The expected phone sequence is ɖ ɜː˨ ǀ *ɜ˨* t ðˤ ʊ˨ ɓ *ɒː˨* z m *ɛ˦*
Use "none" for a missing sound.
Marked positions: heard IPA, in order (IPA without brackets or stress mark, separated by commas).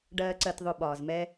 ɜ˨, ɒː˨, ɛ˦